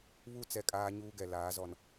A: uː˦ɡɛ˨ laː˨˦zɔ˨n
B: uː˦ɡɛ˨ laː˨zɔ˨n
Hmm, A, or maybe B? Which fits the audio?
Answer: A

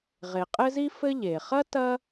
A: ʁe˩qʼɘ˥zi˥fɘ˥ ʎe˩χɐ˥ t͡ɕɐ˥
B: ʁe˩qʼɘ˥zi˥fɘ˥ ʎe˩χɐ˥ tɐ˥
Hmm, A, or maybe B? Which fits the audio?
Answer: B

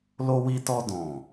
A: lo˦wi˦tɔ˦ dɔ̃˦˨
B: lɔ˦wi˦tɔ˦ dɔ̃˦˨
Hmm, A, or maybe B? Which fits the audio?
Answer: A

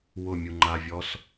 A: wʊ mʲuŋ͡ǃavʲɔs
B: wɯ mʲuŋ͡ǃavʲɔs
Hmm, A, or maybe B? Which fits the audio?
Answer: A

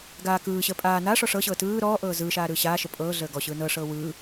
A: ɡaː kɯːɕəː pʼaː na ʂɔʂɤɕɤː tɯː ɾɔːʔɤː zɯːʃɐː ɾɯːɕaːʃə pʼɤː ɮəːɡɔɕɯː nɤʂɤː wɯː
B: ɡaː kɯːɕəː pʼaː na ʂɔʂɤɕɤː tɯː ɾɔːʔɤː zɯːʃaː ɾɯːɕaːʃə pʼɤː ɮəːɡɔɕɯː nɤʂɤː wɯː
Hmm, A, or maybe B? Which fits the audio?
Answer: B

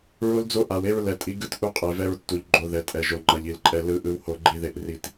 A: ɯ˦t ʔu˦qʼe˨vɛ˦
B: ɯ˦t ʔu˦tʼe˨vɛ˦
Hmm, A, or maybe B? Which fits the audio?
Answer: A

